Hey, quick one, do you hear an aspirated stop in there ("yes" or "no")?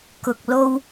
no